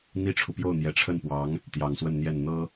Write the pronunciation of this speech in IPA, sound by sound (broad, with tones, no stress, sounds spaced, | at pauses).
n̪ i˥ ʈ͡ʂʰ u˨ p j o˥˩ ʊ̯ n̪ j ɛ˧˥ ʈ͡ʂʰ ə˥˩ n p w ɑ˧˥ ŋ | t̪ j ɑ˨˩ ŋ s w ə˥˧ n n̪ j ɛ˥˩ n n̪ ɤ˥